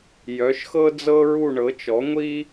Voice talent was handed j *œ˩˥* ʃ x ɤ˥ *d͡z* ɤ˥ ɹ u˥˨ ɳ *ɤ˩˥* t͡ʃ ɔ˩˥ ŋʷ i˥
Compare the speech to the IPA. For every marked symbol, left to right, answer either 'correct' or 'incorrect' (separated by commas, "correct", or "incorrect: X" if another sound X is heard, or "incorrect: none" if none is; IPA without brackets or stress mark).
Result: correct, correct, correct